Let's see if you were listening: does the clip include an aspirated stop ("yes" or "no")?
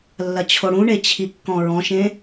yes